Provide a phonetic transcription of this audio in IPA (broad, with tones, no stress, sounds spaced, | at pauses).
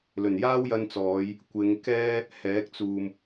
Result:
l ɵ˨˩ n j aː˥ w j ɐ˧ n t͡s ɔː˨˧ j | kʷ ɪ˨˧ ŋ k ɛː˥ | h ɛː˨˥ k̚ t͡s uː˨ m